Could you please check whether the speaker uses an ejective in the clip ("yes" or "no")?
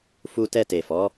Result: no